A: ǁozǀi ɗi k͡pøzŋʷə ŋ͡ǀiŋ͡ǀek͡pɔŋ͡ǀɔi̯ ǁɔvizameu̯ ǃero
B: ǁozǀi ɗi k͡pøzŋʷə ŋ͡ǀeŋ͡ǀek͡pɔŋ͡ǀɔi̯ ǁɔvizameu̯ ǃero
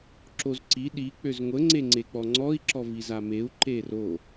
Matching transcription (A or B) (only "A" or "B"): B